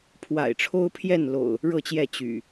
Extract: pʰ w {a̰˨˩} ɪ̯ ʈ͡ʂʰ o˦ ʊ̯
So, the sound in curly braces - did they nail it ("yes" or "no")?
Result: yes